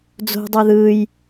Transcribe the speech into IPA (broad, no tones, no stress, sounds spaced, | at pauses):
d͡z o̤ dˤ o ð ɯ j